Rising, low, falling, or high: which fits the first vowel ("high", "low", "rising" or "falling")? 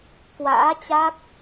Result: rising